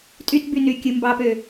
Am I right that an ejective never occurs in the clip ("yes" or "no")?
no